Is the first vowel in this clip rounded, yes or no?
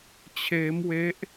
no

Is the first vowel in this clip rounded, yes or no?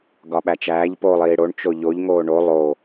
yes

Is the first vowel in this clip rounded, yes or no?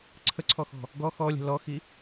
no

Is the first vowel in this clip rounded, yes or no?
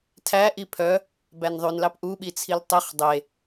no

